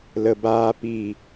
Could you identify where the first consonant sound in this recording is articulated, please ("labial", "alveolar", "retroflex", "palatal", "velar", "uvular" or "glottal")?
alveolar